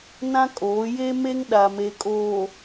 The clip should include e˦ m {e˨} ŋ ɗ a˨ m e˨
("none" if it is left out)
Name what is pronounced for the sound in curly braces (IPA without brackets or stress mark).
e˦